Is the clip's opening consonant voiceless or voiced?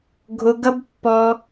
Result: voiced